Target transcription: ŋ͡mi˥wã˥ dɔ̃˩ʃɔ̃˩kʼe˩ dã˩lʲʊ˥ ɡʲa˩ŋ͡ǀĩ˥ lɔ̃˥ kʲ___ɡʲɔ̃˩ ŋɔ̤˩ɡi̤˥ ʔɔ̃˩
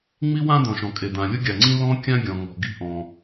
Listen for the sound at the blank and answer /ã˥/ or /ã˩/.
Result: ã˥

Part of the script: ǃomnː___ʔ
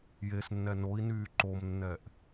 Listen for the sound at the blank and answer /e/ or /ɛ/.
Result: ɛ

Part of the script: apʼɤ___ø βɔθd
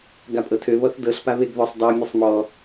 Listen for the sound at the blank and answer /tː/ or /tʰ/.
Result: tʰ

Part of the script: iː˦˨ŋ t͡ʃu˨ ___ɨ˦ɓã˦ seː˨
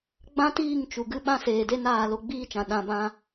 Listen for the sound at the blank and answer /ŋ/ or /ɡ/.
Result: ɡ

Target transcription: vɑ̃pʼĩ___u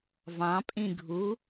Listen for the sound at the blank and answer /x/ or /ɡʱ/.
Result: ɡʱ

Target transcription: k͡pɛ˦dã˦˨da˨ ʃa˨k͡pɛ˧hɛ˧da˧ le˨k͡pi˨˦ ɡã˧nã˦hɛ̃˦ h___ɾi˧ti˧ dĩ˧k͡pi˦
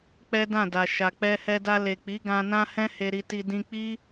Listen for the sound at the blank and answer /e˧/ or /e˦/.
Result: e˧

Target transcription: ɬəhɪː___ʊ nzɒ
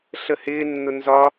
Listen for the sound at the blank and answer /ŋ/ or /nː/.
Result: nː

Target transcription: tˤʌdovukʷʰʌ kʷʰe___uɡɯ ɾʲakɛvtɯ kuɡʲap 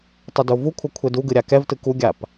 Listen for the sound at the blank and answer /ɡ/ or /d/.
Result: d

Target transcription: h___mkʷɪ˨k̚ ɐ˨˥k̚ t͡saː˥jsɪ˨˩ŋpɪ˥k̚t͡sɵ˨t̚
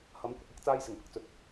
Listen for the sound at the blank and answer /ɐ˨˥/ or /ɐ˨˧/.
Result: ɐ˨˧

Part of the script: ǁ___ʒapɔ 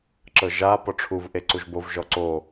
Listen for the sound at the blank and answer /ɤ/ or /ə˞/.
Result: ɤ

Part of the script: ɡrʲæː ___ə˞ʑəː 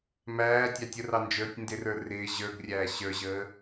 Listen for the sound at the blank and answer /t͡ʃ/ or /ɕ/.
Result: ɕ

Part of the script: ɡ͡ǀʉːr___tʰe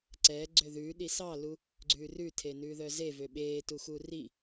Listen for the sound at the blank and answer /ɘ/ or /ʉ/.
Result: ʉ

